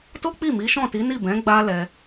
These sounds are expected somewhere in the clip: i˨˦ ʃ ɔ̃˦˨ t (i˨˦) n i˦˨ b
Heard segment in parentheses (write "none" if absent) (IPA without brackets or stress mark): i˨˦